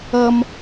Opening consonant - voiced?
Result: yes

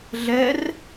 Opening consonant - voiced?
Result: yes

